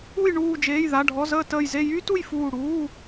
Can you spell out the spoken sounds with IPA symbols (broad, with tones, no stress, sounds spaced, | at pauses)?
u˧˩ j ɳ uː˧˩ d͡ʒ eː˩˧˩ j ð a˩˧˩ ɖʱ ɔ˩˧˩ z əː˧˩ t əː˧˩ j z e˧˩ j yː˦ t u˧˩ j f uː˧˩ ɽ uː˩˧˩